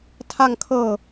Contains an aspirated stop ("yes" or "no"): yes